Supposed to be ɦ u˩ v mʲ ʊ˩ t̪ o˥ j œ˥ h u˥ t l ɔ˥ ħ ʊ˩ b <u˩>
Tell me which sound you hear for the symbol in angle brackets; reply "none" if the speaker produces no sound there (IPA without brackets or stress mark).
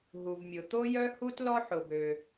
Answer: ø˩